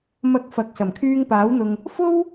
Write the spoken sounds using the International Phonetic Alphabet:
m ɐ˨˥ k̚ f ɐ˨ k̚ s ɐ˨˩ m kʰ yː˧ ŋ p aː˨˥ w n̪ ʊ˧ ŋ | f o˥ w

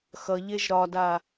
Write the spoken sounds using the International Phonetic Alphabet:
x ʌ ʎ e ʒ ɾ ɒ d a

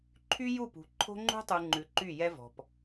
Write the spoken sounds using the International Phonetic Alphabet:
ǃʰ y˦ j u˦˨ p ṳ˨ ǃʰ o̤˦ ŋ͡ǃ ṳ˦ tˤ u˨ ŋ͡ǃ ʉ˨ ǃ y˦˨ j ɛ˦ v ɔ̤˨ p

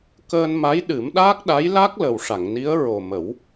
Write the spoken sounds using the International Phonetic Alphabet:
k əː˧ n m a˧˥ j ɗ ɨ˨˩˦ m ɗ aː˦˥ k̚ ɗ a˧˥ j l a˦˥ k̚ l ə˨˩ w ʂ a˨˩˨ ŋ n i˧˥ ə̯ ɹ o˨˩ m ə˨˩˦ w

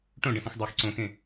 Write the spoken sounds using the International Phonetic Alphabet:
ʈ õ ɖ ə̃ s ẽ x dˤ a x ǀ õ x ẽ

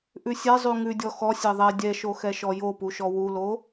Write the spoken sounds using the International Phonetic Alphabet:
ʔ ʉ sʲ ɛ zˤ ʉ ŋ ʉ dʲ ɔ x ɔ sʲ ɛ ðˤ ɛ dʲ ɛ ʃ o x ɛ ʃ ɔ j o p u ʃ ɔ w u l o

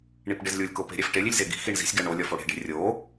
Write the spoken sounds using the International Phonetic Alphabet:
ɳ i p ɖ e z lʲ u lʲ k o p e̤ ɾʲ æ f ʈ e lʲ i lʲ z e ɡ i̤ x i ɳ z i̤ sʲ ɡ æ ɳ o lʲ ɒ f o ɽ e̤ ɖ e̤ rʲ o

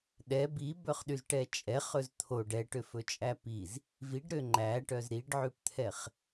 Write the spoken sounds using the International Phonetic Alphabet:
ɗ ɛ b i b œ χ ɗ y z ʈ ɛ t͡ʃʼ ɛ χ ɵ z t̪ʰ o ɖ ɛ ʈ ø f ɵ t͡ʃʼ æ p i z | v i ɖ ɾ ø ŋ͡ǃ æ ʈ œ z ɾ i ɖ ʕ ʉ p t̪ʰ ɛ χ

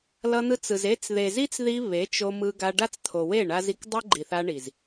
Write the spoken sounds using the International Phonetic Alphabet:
l ʌ˧ n̪ ɯ˧ t͡s ɯ˨ z e˧ t͡s ð e˨ z i˦ t͡s ð i˧ β e˨˦ t͡ʃ o˧ m ɯ˧ ɡ a˧ ɖ a˦ t͡s t̪ʰ o˨ w e˦˨ ɳ a˧ z i˧ k dˤ ɯ˦ ɡ͡ǃ i˨ θ a˧ ɳ i˨ z

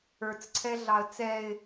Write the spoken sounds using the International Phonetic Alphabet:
ə˞ t͡s ǀʰ ɛ ɮ ɑ ə̯ t͡s ɛ ɪ̯

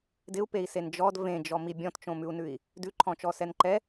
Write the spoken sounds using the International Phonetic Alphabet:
d ɪ u̯ p e i̯ s e n d͡ʒ ɔ d v ẽ d͡ʒ ɔ m i bʲ ɔ̃ t t͡ʃ õ m ʉ u̯ n ʉ i̯ | d ʉ ǃʰ ɔ̃ t͡ʃ ɔ s ɛ n ǃ ɛ

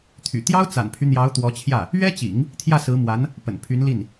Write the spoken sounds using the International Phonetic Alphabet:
t̪ʰ y̰˨˩ t̪ j ɑ˥ ʊ̯ t͡s a̰˨˩ n pʰ y˦ n̪ j ɑ˧˥ ʊ̯ t̪ w ɔ˧˥ t͡ɕʰ j ä˥˩ | ɥ ɛ˥ t͡ɕ ḭ˨˩˦ ŋ | t̪ʰ j ä˥˩ s ɹ̩˧˥ m w a˧˥ n | p ə̰˨˩ n pʰ y˧˥ n l i˥˩ n

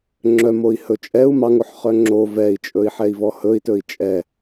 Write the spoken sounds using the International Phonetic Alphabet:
ŋ͡ǁ œ m o i̯ h ɵ t͡ʃʼ ɛ u̯ m ɑ ŋ o ħ χ œ ŋ͡ǁ o v ɛ i̯ t͡ʃʼ ɵ i̯ ħ ɛ i̯ v ɔ h ɵ i̯ t ɵ i̯ t͡ʃʼ ɛ

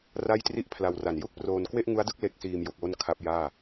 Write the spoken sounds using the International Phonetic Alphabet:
r a˥˩ j t r i˥˩ ʔ pʰ l a˧ w r a˨˩ n j u˥˩ k̚ p r oː˧ n k w e˥˩ ʔ ŋ u˦˥ a̯ d ɯ˥˩ k̚ l e˦˥ k̚ s iː˧ m j o˨˩ k̚ w o˥˩ n kʰ a˦˥ p̚ j aː˥˩

